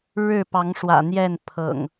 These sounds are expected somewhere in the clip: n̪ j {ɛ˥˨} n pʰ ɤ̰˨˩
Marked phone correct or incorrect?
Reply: correct